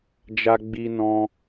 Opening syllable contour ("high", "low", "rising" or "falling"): high